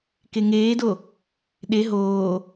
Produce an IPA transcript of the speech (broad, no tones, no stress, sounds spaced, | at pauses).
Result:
k e ŋ eː d o | ɗ e ɦ oː